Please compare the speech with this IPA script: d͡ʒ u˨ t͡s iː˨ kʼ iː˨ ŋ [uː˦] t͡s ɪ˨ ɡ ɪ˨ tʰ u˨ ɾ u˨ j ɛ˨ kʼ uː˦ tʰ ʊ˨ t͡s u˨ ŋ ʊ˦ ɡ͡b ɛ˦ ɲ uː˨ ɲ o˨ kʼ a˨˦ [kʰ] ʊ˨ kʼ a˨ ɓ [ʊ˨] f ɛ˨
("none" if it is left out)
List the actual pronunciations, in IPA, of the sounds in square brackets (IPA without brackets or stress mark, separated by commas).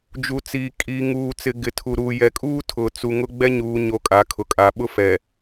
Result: uː˨, kʰ, ʊ˦